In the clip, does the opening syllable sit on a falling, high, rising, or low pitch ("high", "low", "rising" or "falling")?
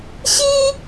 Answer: high